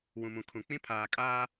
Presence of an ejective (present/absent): present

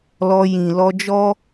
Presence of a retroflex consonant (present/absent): absent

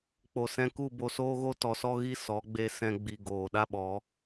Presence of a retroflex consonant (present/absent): absent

